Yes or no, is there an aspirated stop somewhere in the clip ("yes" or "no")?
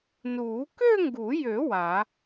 no